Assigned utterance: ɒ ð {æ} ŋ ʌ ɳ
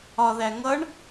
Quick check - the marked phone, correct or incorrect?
correct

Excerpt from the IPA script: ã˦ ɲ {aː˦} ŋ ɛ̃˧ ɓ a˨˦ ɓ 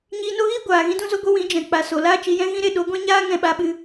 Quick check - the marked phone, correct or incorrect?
correct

